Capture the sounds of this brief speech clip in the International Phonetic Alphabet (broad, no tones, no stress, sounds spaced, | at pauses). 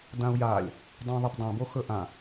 d ã u̯ j a lʲ | dˤ õ ðˤ ə p dˤ œ̃ b o x ɵ ʔ ã